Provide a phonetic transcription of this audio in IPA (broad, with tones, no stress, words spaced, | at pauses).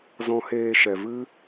zɔ̃˧heː˧ʃɛ˨ vɨ˦